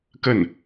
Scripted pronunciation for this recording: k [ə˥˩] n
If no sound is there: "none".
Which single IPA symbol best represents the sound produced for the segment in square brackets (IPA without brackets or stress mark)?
ə˥˩